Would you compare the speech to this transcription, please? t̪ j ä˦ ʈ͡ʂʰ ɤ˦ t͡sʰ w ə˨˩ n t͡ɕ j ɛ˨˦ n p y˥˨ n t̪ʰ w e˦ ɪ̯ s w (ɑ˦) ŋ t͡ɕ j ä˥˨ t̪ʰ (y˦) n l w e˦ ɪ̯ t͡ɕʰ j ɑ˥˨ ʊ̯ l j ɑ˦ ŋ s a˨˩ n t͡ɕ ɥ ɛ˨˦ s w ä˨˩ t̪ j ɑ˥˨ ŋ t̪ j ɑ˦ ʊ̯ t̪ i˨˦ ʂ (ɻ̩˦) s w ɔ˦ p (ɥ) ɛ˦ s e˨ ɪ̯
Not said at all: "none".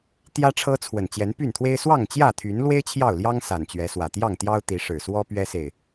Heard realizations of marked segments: ɑ˥˨, y˨˦, ɻ̩˨˩, ɥ

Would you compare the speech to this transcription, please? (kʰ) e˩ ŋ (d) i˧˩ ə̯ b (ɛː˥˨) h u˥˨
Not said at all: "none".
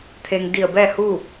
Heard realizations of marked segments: t̪ʰ, d, ɛː˥˨

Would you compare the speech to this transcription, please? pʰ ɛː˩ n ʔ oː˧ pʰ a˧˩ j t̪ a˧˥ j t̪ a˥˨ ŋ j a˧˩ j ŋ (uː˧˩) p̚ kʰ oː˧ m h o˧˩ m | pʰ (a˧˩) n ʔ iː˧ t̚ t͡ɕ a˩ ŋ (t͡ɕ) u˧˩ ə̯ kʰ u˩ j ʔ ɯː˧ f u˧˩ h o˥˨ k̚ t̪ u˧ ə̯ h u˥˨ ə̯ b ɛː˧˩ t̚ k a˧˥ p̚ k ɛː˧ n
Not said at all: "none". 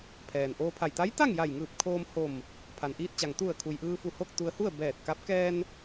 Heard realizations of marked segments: ɯː˧˩, a˩, t̪

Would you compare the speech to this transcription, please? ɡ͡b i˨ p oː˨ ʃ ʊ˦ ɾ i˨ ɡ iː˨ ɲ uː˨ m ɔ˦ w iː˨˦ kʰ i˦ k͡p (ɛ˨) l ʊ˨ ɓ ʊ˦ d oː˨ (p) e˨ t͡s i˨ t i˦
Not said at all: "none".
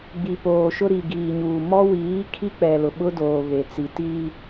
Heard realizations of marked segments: ɛ˨, β

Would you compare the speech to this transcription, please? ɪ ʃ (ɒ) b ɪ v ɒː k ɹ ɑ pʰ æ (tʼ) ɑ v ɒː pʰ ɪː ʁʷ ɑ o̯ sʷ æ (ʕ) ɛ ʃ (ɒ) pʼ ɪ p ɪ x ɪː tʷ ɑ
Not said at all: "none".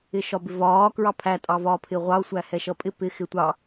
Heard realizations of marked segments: ɒ, tʼ, h, ʌ

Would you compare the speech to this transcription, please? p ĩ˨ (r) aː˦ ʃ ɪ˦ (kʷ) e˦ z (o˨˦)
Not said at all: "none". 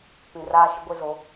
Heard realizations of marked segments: r, ɡʷ, o˨˦

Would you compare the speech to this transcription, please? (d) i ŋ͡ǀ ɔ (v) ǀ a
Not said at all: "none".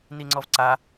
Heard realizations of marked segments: n, v

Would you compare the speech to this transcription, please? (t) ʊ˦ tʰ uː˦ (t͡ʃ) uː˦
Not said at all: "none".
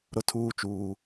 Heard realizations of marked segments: ɾ, t͡ʃ

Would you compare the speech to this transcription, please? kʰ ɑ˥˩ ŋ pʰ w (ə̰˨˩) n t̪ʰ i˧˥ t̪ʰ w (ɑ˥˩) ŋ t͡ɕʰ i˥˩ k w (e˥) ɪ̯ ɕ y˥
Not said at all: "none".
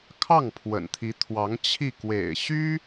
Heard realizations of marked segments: ə̰˨˩, ɑ˧˥, ḛ˨˩

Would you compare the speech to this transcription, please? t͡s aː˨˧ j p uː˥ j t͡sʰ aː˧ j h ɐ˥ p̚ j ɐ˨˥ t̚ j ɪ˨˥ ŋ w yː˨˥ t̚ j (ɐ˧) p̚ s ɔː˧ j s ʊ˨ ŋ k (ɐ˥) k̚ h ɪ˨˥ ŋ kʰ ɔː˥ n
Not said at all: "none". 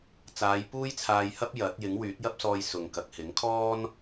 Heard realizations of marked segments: ɐ˥, ɐ˨

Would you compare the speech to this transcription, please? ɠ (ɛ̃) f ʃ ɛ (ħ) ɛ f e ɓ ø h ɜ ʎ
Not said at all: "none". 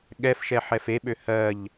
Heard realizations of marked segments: ɛ, ħ

